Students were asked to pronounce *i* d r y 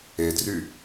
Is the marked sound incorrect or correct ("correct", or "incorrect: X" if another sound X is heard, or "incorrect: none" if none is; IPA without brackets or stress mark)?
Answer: incorrect: e